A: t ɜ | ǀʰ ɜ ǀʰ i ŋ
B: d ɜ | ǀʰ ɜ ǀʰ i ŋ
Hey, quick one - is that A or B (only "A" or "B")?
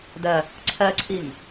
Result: B